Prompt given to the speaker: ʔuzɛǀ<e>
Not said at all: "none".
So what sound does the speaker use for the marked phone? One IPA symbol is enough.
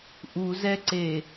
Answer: e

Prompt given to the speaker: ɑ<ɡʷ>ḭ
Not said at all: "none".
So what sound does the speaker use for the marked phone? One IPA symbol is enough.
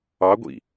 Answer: ɡʷ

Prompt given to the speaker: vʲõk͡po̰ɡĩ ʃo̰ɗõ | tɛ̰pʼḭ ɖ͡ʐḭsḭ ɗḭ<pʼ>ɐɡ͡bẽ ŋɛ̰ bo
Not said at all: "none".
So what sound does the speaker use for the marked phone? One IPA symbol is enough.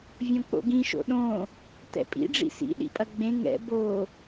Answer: pʼ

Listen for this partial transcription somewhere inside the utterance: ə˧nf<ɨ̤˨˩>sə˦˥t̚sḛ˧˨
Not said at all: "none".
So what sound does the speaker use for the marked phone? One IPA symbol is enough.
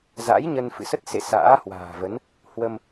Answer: ɨ̰˧˨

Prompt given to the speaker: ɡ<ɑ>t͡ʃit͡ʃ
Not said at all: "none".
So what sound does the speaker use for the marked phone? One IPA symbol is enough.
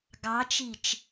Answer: ɑ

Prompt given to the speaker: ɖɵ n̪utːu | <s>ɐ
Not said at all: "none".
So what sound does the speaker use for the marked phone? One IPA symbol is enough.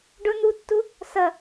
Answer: s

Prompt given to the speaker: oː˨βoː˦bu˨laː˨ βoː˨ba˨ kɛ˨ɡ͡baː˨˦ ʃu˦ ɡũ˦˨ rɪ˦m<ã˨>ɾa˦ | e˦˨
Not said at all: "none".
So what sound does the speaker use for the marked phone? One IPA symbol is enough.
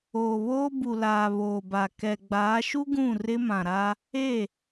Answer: ã˨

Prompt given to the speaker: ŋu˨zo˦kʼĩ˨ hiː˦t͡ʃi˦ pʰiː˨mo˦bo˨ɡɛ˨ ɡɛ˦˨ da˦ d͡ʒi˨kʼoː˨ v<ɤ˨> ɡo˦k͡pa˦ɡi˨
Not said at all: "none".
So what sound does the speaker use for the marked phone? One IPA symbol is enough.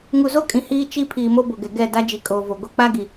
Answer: o˨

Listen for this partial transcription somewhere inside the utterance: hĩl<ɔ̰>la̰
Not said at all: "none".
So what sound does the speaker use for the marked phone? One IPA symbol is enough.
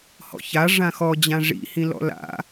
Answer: ɔ̰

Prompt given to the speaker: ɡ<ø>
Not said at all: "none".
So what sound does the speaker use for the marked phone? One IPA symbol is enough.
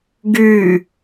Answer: y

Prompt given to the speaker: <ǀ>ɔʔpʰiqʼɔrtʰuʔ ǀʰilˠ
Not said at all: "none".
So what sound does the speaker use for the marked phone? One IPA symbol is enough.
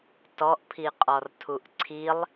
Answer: t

